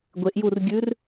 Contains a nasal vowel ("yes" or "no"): no